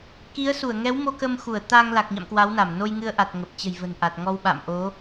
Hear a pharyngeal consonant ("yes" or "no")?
no